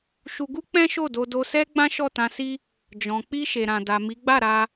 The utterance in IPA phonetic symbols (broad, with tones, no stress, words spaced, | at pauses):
ʃu˧ɡu˦ k͡pɛ̃˦ʃo˦˨do˧ do˧sɛ˦ ɡ͡bã˦ʃɔ˦˨tã˧si˦ | d͡ʒɔ̃˨ k͡pi˧ ʃe˨ɾã˨da˨ mi˨˦ ɡ͡ba˦˨ɾa˧